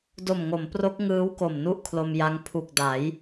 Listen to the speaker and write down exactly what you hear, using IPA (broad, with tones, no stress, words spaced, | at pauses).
do˨˩mŋo˩˦mpro˦˥k̚ ŋɯː˦˥wko˨˩m nu˥˩ʔkʰlo˧mja˦˥ŋ pʰu˨˩k̚da˩˦j